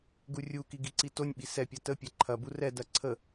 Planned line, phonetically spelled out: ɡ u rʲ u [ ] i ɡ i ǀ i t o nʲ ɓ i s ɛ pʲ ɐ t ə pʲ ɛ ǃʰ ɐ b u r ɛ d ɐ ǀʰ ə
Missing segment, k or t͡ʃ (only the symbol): k